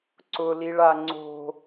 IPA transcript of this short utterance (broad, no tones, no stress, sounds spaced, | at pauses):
ǀ ʊ l i ɭ a ŋ͡ǀ o̤